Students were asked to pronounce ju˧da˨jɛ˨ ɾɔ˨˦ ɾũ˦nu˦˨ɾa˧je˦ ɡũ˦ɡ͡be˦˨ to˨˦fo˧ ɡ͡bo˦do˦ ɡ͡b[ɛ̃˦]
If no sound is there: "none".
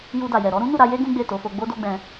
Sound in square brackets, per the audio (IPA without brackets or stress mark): ɛ̃˧